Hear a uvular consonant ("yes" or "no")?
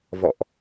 no